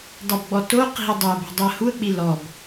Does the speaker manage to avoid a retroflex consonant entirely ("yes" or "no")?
yes